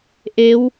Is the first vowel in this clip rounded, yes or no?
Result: no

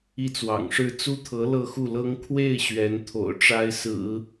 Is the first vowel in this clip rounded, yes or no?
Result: no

